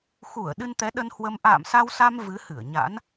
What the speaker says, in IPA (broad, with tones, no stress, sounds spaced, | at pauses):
x u˧˩ ə̯ ɗ ɨ˧ n t̪ ɛ˨˦ ɗ ə˧ n h w ə˧ m ʔ a̰ː˧˨ m s a˧ w s a˧ m v ɨ˨˦ h ɨ˧˩ ə̯ ɲ a̰˧˥ n